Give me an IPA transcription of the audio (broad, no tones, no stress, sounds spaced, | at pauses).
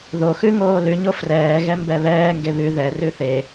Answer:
ð o x ʉ ŋ oː l ʉ ɲ o f r ɛː ɣ ɛ m b ɛ β ɛː ŋ ɡ e β ʉ ð ɛ r ʉ θ e